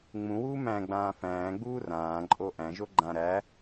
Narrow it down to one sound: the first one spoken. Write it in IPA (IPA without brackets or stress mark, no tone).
ŋ͡m